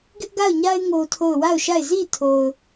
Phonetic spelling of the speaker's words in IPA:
ɡɪ˦ʔɡa˦˨ʊ̯ɲa˦ɪ̯ ŋo˦tʰo˦˨ʊ̯ wa˦˨ʊ̯ʃa˦˨ɪ̯ zi˦˨tʰo˨ʊ̯

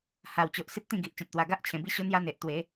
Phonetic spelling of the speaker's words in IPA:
ha˨˩wt͡ɕo˨ʔ si˦p̚t̪ĩ˥˧ɡi˨ʔ t͡ɕã˨t̚t̪wa˨˩ɡa˦ʔ t͡ɕʰẽ˨˩bi˦ɕo˦n̪ja˦ n̪e˨ʔt̪we˨˦

